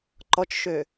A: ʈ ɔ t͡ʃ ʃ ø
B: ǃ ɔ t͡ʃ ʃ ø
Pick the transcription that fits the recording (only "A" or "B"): B